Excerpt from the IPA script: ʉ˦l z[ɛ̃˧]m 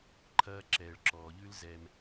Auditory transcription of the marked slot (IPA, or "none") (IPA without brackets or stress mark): ɛ˧